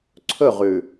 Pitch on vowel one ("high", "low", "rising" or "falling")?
falling